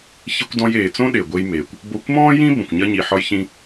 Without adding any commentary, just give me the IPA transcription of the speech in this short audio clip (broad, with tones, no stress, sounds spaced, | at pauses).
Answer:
ç i˧ kʷ d ɔ̃˧ j eː˩ t͡s õ˥ ɗ e˩ ɡʷ e˧ j m eː˩ kʷ | b o˧ kʷ m ɔ̃ː˥ j ĩ˥ b ə̃˩ kʷ ɲ ɐ˧ ɲ i˩ ħ ɒ˧ j ç ĩ˧